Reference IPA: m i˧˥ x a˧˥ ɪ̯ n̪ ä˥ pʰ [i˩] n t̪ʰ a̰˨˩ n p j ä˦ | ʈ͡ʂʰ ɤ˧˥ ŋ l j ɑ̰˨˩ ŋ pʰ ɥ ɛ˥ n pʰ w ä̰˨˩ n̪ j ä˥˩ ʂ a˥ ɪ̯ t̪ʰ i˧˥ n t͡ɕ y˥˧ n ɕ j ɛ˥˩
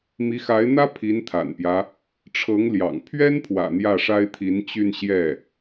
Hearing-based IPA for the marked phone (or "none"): i˧˥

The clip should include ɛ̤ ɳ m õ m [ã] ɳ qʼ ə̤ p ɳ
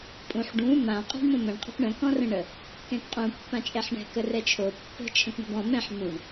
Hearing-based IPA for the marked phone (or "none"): ə̃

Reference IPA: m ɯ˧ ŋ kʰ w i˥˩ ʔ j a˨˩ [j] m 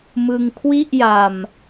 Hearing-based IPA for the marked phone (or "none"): none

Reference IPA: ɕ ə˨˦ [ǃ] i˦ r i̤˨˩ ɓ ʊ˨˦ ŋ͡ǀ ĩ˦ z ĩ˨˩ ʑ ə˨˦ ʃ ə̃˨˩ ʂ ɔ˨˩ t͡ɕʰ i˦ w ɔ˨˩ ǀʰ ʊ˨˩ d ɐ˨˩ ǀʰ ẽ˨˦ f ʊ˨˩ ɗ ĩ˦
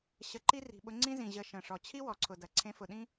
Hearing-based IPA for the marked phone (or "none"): ǃ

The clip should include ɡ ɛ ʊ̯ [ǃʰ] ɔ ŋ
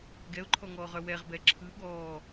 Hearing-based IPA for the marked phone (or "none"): ǃʰ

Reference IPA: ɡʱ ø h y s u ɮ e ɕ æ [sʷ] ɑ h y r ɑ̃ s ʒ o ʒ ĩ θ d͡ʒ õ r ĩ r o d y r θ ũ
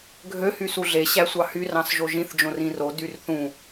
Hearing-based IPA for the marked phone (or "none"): sʷ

